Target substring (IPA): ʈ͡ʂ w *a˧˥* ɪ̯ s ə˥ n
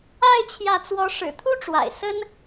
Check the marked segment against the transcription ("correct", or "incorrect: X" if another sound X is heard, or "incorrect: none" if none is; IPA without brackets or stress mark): incorrect: a̰˨˩